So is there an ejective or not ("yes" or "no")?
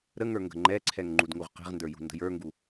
no